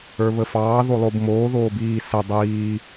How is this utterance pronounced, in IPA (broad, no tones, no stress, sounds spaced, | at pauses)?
ə˞ β ə f ɑː ð o lˠ o b m oː ð oː b iː s ə dˤ iː